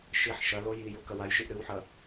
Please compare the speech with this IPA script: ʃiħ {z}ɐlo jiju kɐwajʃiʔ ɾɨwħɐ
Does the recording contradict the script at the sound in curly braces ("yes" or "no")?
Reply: yes